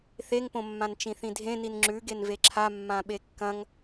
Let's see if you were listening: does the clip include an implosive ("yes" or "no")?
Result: yes